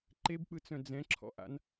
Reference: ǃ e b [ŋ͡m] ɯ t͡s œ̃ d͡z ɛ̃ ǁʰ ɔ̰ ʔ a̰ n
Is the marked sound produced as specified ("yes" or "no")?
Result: no